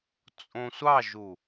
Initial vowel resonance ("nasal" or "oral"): nasal